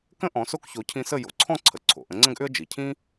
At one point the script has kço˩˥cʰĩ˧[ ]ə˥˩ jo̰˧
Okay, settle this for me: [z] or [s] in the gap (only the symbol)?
s